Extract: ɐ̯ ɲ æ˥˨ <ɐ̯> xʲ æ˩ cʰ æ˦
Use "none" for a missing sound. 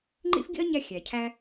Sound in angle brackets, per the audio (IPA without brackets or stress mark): none